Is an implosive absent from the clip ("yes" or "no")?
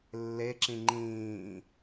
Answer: yes